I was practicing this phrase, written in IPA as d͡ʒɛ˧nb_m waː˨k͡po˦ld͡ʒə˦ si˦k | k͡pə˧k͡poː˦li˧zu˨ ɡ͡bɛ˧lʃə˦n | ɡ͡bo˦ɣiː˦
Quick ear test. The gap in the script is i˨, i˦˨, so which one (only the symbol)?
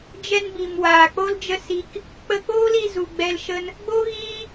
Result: i˨